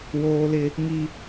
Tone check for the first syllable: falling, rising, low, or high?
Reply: high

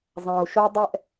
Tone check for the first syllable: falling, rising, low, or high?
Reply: low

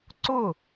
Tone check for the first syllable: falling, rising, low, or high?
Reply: falling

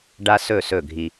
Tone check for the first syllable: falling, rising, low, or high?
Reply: high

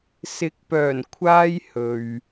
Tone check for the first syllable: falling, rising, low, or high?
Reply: rising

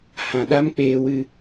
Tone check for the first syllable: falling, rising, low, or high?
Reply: low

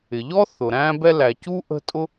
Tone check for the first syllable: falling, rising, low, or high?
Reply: low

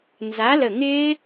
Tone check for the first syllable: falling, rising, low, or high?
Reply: rising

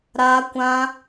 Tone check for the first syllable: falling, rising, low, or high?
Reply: high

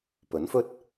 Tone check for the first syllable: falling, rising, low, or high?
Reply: rising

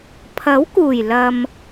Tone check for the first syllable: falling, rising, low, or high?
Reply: rising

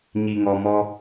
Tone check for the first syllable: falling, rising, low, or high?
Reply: low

